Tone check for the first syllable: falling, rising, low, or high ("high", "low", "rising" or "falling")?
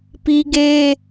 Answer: high